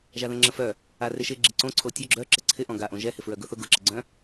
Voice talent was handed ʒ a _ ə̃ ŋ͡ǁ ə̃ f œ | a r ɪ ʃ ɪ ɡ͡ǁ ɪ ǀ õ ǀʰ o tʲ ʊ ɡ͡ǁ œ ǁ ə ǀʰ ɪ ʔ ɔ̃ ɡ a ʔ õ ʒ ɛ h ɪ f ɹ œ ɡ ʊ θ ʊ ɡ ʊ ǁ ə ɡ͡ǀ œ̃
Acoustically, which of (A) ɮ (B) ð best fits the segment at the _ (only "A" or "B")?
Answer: B